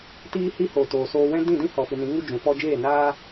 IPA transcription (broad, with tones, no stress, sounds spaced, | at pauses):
t iː˧ h i˧ h o˨ t oː˨ s oː˧ w ɛ̃˦ d ĩ˦˨ d ĩ˦ h ɔ˨ f ɨ˨ n ĩ˨˦ ŋ u˦ d͡ʒ ũ˨ f ɔ˧ d͡ʒ eː˦˨ n aː˦